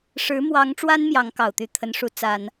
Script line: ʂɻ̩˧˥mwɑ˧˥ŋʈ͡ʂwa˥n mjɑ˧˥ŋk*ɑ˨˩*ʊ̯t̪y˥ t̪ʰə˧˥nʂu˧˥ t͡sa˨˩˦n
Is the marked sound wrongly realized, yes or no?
no